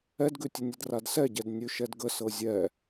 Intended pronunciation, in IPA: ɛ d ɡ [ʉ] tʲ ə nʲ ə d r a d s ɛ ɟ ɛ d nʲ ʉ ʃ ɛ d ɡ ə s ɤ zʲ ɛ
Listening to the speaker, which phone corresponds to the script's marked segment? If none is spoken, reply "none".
ʉ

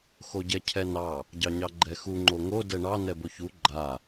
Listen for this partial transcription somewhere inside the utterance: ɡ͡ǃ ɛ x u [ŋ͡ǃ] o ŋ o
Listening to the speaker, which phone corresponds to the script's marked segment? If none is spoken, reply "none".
ŋ͡ǃ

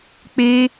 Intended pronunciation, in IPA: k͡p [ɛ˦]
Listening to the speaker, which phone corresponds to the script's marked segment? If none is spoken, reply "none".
e˦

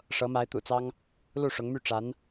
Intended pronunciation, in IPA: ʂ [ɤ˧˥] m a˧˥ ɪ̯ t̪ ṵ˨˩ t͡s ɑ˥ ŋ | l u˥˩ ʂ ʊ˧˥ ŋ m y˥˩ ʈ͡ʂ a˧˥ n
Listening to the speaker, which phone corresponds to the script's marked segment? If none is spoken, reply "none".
ɤ˧˥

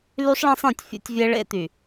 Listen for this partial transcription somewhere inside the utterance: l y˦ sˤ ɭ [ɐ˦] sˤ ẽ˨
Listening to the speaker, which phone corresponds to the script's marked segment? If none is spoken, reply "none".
ɐ̃˦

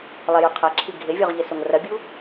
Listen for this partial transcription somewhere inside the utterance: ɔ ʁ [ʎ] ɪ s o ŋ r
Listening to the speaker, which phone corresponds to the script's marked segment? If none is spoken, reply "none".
ʎ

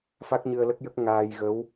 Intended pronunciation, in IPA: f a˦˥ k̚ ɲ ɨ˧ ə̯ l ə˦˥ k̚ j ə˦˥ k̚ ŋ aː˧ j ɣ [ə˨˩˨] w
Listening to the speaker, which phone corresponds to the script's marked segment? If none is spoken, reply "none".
ə˧˥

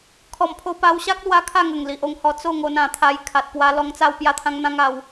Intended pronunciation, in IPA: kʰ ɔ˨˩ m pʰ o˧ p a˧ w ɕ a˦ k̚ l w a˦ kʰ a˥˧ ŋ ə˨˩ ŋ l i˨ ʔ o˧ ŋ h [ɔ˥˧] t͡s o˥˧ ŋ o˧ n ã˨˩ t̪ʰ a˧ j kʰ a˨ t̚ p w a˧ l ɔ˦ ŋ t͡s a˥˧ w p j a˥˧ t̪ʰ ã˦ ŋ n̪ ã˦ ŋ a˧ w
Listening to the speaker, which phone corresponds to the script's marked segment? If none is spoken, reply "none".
ɔ˧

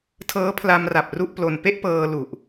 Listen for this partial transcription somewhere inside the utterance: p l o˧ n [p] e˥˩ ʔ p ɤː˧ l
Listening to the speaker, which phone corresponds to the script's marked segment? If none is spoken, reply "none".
p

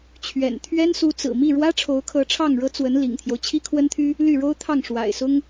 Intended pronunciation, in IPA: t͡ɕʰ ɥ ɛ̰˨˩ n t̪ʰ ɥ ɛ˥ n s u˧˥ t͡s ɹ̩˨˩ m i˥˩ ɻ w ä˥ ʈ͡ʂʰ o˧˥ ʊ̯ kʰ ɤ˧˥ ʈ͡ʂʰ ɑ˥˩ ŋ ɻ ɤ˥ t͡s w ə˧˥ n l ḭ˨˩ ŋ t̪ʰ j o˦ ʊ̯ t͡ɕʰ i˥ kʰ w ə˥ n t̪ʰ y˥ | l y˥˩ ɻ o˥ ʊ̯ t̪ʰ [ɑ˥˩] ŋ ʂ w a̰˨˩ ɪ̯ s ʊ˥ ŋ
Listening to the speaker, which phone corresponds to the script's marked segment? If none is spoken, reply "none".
ɑ˥˩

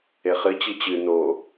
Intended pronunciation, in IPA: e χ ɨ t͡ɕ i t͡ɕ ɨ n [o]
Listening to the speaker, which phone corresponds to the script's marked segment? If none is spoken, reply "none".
o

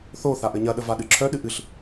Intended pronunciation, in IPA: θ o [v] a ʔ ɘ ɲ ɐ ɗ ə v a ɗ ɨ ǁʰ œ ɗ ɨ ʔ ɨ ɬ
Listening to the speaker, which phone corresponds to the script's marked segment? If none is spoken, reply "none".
θ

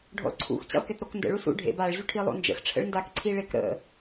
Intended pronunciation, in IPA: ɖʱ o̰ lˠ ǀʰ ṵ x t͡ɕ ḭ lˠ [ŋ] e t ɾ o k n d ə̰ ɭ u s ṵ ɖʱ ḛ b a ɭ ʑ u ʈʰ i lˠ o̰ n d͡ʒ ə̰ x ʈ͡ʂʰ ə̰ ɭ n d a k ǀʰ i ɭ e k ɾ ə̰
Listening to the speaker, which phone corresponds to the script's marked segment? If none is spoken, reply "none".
k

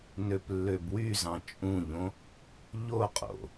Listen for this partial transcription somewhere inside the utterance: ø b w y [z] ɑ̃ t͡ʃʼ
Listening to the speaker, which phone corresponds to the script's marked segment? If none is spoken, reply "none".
z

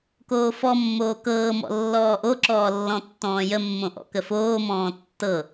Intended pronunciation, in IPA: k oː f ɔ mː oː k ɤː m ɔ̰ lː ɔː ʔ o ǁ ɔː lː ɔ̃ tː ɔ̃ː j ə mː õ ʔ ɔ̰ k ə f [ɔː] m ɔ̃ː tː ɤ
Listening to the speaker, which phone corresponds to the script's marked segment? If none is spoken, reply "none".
oː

